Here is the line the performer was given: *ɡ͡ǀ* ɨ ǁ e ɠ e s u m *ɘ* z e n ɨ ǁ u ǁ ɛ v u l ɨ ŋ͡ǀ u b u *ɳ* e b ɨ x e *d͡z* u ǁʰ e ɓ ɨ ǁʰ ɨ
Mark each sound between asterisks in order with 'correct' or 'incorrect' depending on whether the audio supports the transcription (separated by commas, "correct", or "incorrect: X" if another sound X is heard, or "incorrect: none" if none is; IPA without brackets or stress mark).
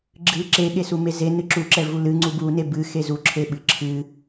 incorrect: ɡ͡ǁ, incorrect: e, incorrect: n, incorrect: z